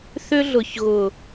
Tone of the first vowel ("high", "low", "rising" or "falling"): high